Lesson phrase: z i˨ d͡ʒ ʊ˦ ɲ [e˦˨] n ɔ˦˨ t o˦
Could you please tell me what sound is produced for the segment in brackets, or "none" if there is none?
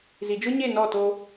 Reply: e˦˨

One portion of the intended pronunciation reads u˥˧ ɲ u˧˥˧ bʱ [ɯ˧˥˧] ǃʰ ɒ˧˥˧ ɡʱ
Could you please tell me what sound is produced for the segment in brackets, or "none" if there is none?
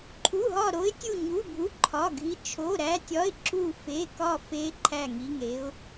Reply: u˧˥˧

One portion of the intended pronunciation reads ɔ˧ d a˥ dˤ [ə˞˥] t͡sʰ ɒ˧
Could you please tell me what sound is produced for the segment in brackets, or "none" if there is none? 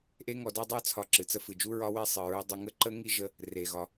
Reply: ə˞˥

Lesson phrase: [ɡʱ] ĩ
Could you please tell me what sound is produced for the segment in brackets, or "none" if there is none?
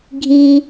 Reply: ɡʱ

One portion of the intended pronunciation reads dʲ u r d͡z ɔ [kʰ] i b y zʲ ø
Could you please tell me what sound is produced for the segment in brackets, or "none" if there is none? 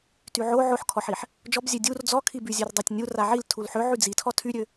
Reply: kʰ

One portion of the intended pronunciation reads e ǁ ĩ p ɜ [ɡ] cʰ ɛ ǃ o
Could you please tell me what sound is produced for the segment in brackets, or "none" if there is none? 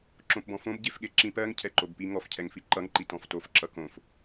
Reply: ŋ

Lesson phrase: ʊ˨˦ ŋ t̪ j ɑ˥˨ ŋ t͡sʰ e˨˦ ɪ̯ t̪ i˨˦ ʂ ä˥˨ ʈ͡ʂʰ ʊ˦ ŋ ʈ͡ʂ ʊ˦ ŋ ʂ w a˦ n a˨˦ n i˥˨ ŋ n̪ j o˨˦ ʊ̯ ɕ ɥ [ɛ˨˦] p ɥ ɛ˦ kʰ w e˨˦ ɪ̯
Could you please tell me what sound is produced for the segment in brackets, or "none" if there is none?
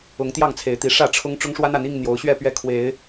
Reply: ɛ˥˨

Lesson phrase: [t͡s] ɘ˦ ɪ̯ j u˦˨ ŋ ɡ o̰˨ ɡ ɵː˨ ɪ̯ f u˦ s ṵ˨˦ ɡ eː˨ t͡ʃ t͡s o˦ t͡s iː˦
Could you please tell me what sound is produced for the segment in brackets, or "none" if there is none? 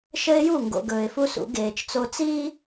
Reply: ʃ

